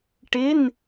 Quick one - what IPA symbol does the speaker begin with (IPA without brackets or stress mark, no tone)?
ʈ